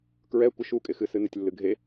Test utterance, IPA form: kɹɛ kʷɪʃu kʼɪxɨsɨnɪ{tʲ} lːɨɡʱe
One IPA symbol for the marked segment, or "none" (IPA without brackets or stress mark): tʲ